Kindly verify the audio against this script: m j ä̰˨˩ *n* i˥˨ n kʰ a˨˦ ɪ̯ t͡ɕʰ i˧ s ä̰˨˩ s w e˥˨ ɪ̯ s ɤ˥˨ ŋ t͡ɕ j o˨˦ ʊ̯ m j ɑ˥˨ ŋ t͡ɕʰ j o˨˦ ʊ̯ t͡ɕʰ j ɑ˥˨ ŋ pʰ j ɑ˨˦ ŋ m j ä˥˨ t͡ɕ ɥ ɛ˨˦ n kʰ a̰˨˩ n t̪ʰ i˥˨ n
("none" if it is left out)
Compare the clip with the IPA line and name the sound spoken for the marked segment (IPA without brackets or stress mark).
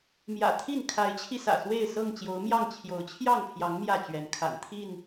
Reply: t̪ʰ